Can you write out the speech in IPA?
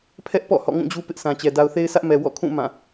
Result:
pʰɛ˦ʔ pɔ̰˦˨ hɔ̰˦˨ŋũ˦˨d͡ʑu˦ pɪ˦ʔsʰã˨t͡ɕɛ˨ da˨ʊ̯θe˦ɪ̯sʰä˦ʔmɛ˨ wɔ̰˦˨kʰũ˦˨ mã˦˨

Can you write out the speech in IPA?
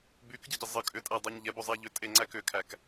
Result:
bykɟɨɟə zˤə kʼʏtʼædˤoɲ ʎɛbozˤæ ʎʏtʼeŋ͡ǀæ kʏkʰæk

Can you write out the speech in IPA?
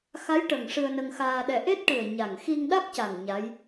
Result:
xa˧˥jʈə˨˩ŋ ʂɨ˧ə̯nə˧ŋxaː˧ɗɛ˧ ʔe˦˥t̚ʈɨ˨˩ə̯ ɲa˨˩ŋ xi˧ŋ ɗa˦˥k̚ca˨˩ŋ ɲa˧˥j

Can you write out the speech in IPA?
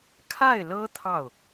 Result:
kʰa˥˩ɪ̯lɤ˥ t̪ʰɑ˥˩ʊ̯

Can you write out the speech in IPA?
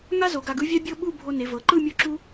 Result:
ŋa˥zo˩˧ɡ a˧ɡɯ˥vʲa˥ bʲɤ˥˧ɓu˥˧ bʱo˧ne˩˧vɤ˩˧ǃɯ˥˧ mʲo˥˧ǁu˥

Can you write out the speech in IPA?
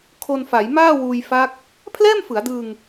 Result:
kʰo˧nfa˩˦j maː˥˩wuː˧j fa˦˥k̚ | pʰlɛː˥˩mfɯ˩˦a̯dɯː˧ŋ

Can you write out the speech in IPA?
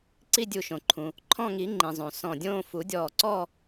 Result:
ǀi˥˧dʲu˧˩ʃõ˩ ǃʰũ˩ | ǃʰɔ̃˥˧ ŋi˨˩˦ ŋ͡ǃĩ˩zˤõ˩ sɔ̃˧˩dʲõː˥˧ fu˨˩˦dʲɔː˧˩ǀɔ˥˧

